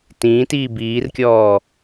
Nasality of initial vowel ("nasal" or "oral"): nasal